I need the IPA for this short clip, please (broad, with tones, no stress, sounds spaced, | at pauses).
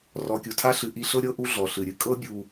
r ɔ˨ kʲ u˩ tʰ a˦ ɬ ɨ˨ ʔ i˥ ɬ ɤ˥ ɾʲ ɤ˥ ʔ u˥ ɮ ɔ˩ ɬ ɨ˩ ɾʲ ɨ˨ kʼ ɤ˥ bʲ u˨